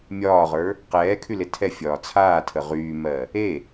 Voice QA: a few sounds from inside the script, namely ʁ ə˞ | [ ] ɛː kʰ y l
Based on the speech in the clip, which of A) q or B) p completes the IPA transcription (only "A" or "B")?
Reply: A